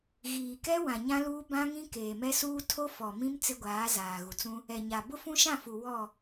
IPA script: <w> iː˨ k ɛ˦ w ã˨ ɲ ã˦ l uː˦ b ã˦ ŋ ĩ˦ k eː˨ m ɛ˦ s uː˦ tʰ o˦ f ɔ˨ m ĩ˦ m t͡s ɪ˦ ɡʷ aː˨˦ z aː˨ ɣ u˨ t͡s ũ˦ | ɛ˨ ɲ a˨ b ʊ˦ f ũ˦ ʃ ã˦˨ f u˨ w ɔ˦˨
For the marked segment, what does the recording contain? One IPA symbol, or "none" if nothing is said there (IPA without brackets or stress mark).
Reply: ɣ